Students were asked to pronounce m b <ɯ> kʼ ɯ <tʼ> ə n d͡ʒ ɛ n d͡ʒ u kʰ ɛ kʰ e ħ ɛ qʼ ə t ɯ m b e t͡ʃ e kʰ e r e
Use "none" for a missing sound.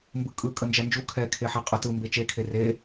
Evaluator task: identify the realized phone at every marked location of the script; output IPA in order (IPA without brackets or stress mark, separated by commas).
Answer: ɯ, kʼ